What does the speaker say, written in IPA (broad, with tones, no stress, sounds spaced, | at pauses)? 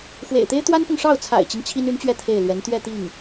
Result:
x w ḛ˨˩ ɪ̯ t̪ e˥ ɪ̯ t̪ w a˥ n p ʊ˨ ŋ ʂ ɑ˥˩ ʊ̯ t͡sʰ a̰˨˩ ɪ̯ t͡ɕ i˦ ŋ t͡ɕʰ i˥ n y˧˥ n t͡ɕ ɥ ɛ˥˧ t̪ʰ e˥˩ ɪ̯ l ɥ ɛ˧˥ n t̪ ɥ ɛ˥˧ t̪ i˥˩ ŋ